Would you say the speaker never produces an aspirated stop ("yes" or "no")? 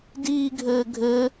yes